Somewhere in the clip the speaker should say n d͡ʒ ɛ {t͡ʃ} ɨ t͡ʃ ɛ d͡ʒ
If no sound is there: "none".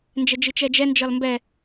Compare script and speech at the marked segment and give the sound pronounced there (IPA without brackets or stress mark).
d͡ʒ